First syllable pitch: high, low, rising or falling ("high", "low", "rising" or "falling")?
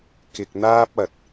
low